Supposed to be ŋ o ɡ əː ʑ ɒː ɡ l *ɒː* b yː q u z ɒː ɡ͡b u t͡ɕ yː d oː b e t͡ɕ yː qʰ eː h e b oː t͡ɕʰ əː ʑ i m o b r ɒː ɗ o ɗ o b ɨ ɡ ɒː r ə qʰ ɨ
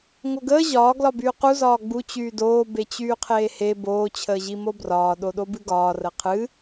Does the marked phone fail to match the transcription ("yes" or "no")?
yes